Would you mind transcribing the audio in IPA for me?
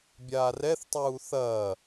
bʲ aː r ɛ θ tˤ uː θ ɐː

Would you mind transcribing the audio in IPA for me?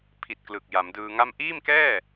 pʰ i˨˩ t̚ k l ɯ˨˩ k̚ j a˩˦ m d ɯː˧ ŋ a˥˩ m ʔ iː˥˩ m k ɛː˥˩

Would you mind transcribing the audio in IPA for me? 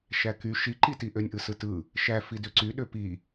ʃ æ k y ʃ i ǃ i t i ʔ ø nʲ ʔ ɯ s ɯ t ɯ | ʃ æ f i d ø ǀ y ɗ ø p i

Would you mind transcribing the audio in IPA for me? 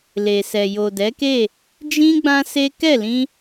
l e˨ s ɛ˨ j o˨ d ɛ˨˦ k e˦˨ | d͡ʒ ĩ˦ ɡ͡b ã˦ s e˦ k ɛ˦˨ l ĩ˧

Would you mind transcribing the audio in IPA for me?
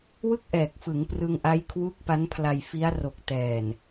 w ɯ˥˩ k̚ ʔ ɛː˨˩ k̚ f ɯ˩˦ ŋ p r ɯ˧ ŋ ʔ a˦˥ j kʰ w u˦˥ k̚ p a˦˥ n pʰ l a˧ j f i˦˥ a̯ r o˨˩ k̚ t ɛː˨˩ n

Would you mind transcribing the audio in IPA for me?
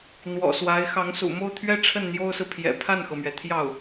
n̪ w ɔ̰˨˩ s w a˧˥ ɪ̯ x ɑ˧˥ ŋ s ṵ˨˩ m o˥˩ ʊ̯ t̪ʰ ɥ ɛ˥ ʈ͡ʂʰ ə˥˩ n n̪ j o˥ ʊ̯ s ɹ̩˨ pʰ j ɛ̰˨˩ pʰ a˥˩ n x ɤ˩ m ɥ ɛ˩ t̪ʰ j ɑ˥˩ ʊ̯

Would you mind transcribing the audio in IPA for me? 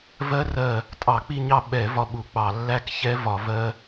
v ɜ˦˥ r ɜ˦˨ | tʼ ɑ˧˩˧ k͡p i˦˨ ɲ ɑ˦˨ ɓ ɛ˧˩˧ v ɒ˦˨ ɓ u˧˩˧ k͡p ɑ˧˩˧ lː æ˦˥ k ç ɛ˦˥ v ɒ˧˩˧ v ɜ˦˥

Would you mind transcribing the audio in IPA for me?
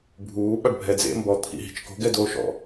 bʱ uː ɓ a ɖ bʱ ɛ d͡z ḛ m b ɔ t̪ʰ ḭ ɦ i̤ t͡ʃ k o̤ ɡ ɛ d oː ʃ ɔ̰

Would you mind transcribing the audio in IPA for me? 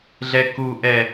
ɮ ɛ k u ʔ ɛ

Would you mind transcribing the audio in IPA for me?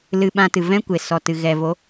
l ɨ˧ ɓ ã˧ t ɨ˨ v ɛ̃˦ kʷ e˨ s ɔ˨ t ɨ˨ ɣ ɛ˨ v o˨˦

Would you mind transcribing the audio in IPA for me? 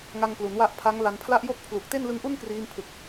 ŋ a˧ ŋ k l u˩˦ n w a˦˥ ʔ pʰ a˦˥ ŋ l a˧ n pʰ l a˥˩ ʔ j o˥˩ k̚ pʰ l u˨˩ k̚ t e˥˩ n l ɯ˦˥ ŋ ʔ u˥˩ n k r iː˦˥ m pʰ ɯ˨˩ k̚

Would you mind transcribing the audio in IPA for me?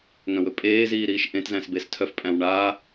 ŋ œ̃ w ɵ pʼ eː z iː ɾ iː ʃ ʔ ẽ t z æ̃ s b e s tʰ œ f pʼ æ̃ w ɳ aː

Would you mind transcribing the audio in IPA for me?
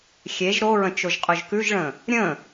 xʲ e ʒ ɾ o ɹ ə̃ t͡ʃ o ʒ qʼ ɵ ʒ k ʉ ʒ ɭ ə̃ | ɾʲ ə̃

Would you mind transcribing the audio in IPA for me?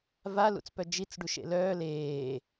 v a l ṵ t͡s p œ d͡ʒ i t͡s ɖ u ʃ ḛ l œː l eː

